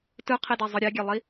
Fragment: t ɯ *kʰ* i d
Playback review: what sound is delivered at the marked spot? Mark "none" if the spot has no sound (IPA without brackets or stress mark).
qʰ